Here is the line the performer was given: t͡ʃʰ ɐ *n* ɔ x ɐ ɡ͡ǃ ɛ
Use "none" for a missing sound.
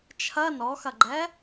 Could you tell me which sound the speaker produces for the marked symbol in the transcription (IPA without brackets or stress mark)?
n